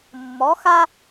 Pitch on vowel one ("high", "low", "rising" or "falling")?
rising